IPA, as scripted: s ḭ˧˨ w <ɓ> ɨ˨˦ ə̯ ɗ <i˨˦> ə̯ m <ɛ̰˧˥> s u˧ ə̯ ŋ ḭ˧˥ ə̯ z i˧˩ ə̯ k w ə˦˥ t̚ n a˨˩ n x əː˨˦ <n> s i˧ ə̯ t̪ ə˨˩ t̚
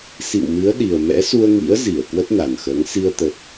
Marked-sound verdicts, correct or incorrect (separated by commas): incorrect, incorrect, correct, incorrect